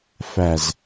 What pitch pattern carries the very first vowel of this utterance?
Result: low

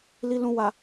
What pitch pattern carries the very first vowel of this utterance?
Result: low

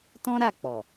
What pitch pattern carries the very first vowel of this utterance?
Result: high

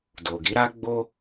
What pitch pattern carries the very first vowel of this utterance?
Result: low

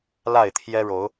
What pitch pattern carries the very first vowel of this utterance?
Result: falling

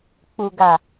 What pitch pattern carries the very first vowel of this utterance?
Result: low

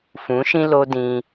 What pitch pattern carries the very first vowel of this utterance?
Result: rising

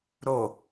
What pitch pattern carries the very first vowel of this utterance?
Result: low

